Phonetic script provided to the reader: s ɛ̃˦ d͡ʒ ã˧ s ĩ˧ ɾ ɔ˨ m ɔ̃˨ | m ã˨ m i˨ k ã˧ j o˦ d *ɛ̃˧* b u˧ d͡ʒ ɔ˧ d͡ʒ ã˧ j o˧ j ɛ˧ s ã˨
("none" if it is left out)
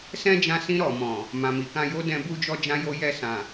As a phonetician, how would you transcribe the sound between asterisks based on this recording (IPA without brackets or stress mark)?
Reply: ɛ̃˧